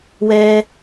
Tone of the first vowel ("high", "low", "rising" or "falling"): high